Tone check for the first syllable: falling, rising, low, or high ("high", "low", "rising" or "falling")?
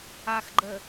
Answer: low